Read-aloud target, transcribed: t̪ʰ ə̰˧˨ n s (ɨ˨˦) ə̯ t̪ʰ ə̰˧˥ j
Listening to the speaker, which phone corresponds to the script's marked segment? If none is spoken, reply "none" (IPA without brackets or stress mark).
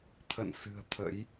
ɨ̤˨˩